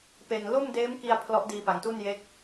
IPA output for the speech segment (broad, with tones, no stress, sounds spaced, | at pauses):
p e˨˩ n l o˥˩ m d eː˦˥ m k i˧ a̯ pʰ l ɔ˦˥ ʔ d iː˧ p a˩˦ ŋ t u˥˩ n j e˦˥ k̚